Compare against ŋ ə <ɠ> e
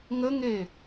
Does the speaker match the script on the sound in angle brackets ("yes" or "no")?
no